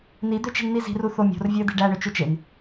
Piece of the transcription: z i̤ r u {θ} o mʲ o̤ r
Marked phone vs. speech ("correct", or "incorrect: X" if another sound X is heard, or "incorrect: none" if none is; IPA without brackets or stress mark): correct